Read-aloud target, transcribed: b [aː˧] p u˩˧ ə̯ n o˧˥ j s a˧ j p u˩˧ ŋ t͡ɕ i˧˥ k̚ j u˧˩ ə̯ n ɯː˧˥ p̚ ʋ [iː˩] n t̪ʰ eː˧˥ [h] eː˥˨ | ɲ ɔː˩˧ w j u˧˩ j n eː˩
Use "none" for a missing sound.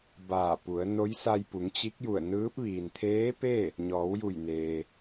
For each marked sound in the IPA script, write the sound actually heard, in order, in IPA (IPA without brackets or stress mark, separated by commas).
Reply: aː˧˩, iː˩, p